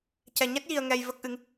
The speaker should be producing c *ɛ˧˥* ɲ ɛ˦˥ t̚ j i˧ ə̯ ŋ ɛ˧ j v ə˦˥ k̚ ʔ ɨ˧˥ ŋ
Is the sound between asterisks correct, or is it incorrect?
incorrect